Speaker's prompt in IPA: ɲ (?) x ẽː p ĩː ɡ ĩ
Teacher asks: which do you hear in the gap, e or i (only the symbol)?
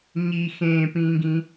i